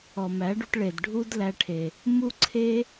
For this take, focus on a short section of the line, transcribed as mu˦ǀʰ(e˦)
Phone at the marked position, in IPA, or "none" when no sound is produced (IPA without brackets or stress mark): e˦